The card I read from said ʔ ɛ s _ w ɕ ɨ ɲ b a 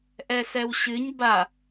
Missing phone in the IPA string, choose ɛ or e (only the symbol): ɛ